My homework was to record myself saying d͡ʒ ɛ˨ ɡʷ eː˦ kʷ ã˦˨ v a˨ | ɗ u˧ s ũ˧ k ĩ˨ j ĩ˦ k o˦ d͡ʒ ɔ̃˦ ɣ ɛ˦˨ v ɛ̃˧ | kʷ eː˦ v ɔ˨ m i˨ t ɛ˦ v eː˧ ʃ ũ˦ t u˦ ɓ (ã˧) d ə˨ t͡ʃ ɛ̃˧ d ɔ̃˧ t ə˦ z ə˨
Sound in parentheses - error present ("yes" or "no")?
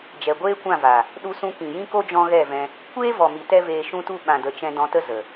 yes